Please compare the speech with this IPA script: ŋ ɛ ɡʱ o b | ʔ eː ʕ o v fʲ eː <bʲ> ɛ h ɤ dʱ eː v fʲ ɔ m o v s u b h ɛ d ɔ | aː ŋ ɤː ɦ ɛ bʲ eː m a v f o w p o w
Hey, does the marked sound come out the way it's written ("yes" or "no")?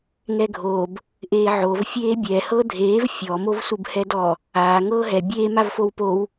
yes